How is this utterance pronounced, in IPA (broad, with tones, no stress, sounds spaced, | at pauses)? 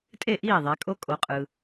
tʼ e˥˨ ʔ iː˥˨ ðˤ e˨˥ kʼ o˦˥ kʼ o˨˥ qʼ ɯː˨